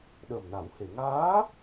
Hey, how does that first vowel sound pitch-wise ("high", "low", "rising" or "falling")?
low